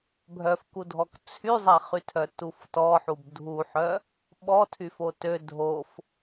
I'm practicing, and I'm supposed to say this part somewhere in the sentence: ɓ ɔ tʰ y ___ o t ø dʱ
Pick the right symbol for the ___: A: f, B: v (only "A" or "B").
A